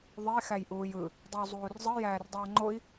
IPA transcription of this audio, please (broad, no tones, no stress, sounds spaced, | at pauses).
ðˤ e x æ j ʔ uː j ɯ | dˤ e w zˤ uː r zˤ ɯ j æː r dˤ ʌː ŋ͡ǃ o i̯